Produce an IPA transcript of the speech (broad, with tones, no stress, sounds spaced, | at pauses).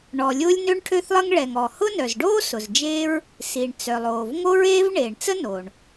ɳ ɔ˩ lʲ ʊː˥ lʲ n ø˥ ɳ ʈʰ ø˥ θ lˠ ə˥ ŋ ɭ ɛ˩ ŋ ɔ˩ h ʊ˥ n œ˩ z ɖ oː˥ s ʊ˩ z d͡ʒ eː˥ ɹ | s i˩ ɳ t͡s œ˩ lˠ oː˩ v ŋ o˥ ɹ eː˥ v ɳ eː˩ ɳ t͡s ə˥ n oː˩ ɳ